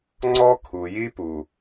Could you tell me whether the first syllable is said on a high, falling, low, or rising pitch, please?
high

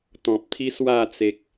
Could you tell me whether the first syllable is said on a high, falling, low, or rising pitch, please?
low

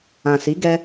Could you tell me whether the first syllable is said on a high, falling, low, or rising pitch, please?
low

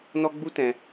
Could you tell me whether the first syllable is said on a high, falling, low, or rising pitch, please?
high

